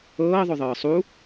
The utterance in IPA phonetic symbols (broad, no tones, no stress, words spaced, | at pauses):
ɤːðˤoðˤɤː sˤu